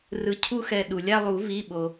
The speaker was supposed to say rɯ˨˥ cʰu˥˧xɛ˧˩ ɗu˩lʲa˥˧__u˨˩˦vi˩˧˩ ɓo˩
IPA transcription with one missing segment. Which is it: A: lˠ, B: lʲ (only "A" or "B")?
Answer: A